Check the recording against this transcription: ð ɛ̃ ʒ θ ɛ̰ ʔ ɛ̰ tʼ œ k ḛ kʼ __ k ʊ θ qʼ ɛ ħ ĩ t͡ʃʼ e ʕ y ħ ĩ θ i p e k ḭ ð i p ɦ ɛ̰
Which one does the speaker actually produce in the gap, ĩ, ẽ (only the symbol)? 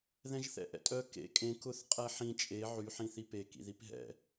ẽ